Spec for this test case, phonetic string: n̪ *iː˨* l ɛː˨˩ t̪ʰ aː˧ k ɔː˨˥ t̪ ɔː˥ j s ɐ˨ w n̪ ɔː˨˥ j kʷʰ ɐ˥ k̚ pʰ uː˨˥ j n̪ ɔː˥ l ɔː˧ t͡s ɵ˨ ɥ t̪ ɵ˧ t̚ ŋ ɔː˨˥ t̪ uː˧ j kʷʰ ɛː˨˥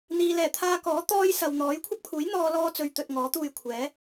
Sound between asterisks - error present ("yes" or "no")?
no